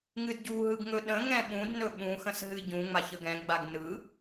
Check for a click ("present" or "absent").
absent